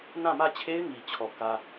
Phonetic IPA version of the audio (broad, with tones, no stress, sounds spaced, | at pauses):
n ã˦˨ m ä˦˨ t͡ɕʰ e˦ ɪ̯ ŋ i˨ t͡ɕʰ ɔ˨ k ä˦